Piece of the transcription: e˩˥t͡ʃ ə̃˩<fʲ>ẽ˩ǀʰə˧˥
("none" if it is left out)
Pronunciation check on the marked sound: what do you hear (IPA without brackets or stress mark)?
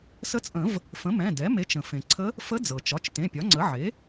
f